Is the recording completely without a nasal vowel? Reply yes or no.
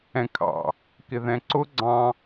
no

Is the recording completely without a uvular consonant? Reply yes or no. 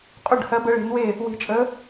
no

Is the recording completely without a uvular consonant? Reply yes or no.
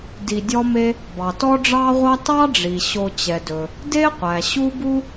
no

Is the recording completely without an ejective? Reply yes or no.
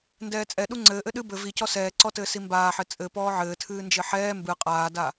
no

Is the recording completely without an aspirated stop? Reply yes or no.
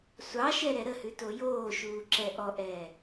yes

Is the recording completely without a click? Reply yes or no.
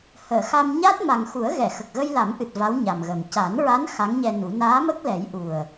yes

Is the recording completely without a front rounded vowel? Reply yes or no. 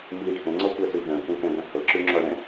no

